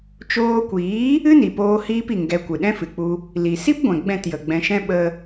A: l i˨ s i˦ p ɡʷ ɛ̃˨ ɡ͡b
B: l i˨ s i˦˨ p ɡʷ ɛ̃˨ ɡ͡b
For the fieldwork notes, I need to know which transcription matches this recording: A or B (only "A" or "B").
A